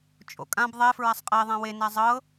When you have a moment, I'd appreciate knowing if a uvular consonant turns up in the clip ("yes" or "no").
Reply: yes